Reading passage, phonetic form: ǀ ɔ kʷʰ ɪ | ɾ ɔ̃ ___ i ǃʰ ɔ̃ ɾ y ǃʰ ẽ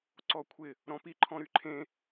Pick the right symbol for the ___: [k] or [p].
p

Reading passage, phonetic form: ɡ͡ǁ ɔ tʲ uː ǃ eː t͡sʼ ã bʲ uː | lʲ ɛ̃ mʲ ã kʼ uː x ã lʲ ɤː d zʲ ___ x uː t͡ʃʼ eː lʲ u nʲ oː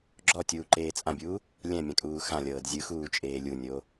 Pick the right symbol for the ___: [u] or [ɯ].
ɯ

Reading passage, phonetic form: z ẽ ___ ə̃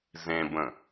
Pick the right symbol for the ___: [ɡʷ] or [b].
b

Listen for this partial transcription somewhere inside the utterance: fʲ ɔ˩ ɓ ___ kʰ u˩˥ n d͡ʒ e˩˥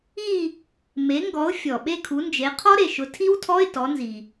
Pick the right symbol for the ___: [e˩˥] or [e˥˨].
e˥˨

